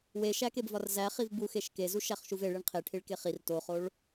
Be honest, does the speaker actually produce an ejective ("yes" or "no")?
no